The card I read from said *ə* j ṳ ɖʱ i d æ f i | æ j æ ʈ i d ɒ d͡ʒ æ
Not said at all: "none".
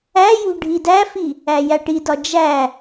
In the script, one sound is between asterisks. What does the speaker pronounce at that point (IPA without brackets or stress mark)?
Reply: æ